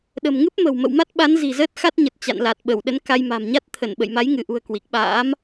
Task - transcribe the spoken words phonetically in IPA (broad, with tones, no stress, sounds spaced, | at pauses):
ɗ ə̤˨˩ m ŋ ɨ˦˥ p̚ m ə̤˨˩ w m ə̰˧˨ w m a˦˥ t̚ ɓ a˨˦ n z i̤˨˩ z əː˦˥ t̚ x a˦˥ t̚ ɲ ə˨˩ t̚ t͡ɕ a̰˧˨ n l a˨˩ t̚ ɓ ə˧˩ w ɗ ə˨˦ n k a˧ j m a̤˨˩ m ɲ a˦˥ t̚ t̪ʰ ə˧˩ n ɓ ə̰˧˨ j m a˨˦ j ŋ ɨ˧˩ ʔ ṳ˨˩ ə̯ k w i˨˩ k̚ ɓ a̰ː˧˥ m